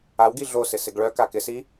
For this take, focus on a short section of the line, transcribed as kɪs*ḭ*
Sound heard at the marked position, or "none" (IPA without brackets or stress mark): i